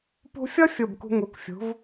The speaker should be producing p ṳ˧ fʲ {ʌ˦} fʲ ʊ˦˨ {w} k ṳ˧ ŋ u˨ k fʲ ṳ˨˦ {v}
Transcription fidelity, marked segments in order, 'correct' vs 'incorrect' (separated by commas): correct, incorrect, correct